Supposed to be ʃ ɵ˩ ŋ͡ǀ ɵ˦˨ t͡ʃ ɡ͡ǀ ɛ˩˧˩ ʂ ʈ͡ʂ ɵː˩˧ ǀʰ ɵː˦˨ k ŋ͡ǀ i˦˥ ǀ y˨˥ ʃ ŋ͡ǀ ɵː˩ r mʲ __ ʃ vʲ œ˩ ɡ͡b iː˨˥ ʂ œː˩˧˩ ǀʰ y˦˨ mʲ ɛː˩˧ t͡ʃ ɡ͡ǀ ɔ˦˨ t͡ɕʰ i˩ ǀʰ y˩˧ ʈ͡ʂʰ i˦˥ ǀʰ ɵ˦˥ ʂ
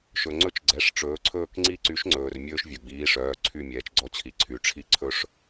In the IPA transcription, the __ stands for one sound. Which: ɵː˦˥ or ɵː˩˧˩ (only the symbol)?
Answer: ɵː˦˥